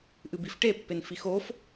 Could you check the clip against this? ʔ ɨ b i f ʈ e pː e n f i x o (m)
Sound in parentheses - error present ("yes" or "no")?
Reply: yes